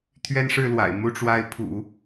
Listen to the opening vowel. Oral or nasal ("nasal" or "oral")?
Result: oral